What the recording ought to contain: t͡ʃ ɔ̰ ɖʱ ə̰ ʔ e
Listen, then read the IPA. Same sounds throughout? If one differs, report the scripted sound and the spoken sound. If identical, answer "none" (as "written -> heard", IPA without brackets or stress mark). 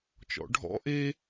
ə̰ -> ɔ̰